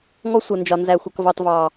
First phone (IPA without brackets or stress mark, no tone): ŋ